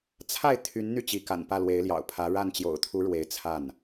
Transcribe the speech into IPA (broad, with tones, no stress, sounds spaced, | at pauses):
t͡sʰ a˥˩ ɪ̯ t̪ʰ y˧˥ n n̪ y˥˩ t͡ɕ i˧˥ k a̰˨˩ n p ä˥˩ l w e˧˥ ɪ̯ l j ɑ̰˨˩ ʊ̯ pʰ ä˧˥ ɻ a˥˩ n t͡ɕ j o̰˨˩ ʊ̯ t̪ʰ u˧˥ ɻ w e˧˥ ɪ̯ t͡sʰ a˥˩ n